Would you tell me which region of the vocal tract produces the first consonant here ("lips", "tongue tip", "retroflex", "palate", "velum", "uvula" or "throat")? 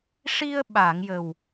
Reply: retroflex